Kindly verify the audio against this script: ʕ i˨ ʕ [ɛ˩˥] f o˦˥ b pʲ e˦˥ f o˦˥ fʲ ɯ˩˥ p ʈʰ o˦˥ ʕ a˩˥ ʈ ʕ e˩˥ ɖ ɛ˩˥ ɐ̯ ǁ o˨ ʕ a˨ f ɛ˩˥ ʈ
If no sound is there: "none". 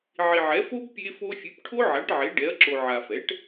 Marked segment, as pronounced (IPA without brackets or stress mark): ɛ˩˥